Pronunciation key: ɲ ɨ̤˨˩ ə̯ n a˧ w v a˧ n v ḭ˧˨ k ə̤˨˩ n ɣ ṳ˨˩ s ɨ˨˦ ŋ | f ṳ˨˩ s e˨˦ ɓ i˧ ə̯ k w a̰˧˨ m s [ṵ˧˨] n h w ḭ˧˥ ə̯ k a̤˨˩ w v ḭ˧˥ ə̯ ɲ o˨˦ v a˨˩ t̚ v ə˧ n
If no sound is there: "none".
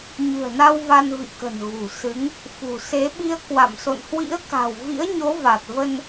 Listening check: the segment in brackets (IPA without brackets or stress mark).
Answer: o̰˧˨